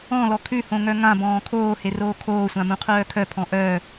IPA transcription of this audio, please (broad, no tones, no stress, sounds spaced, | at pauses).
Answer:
ɔ̃ l ɔ kʰ ʉ h õ ŋ œ ŋ ã b ɔ̃ː kʰ oː h e r oː kʰ oː sʷ ã m ũ qʰ œː kʰ œ pʰ ɔ̃ ʔ œ